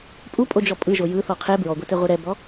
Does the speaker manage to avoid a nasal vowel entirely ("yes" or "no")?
yes